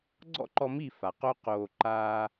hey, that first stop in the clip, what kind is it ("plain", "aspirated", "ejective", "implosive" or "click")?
click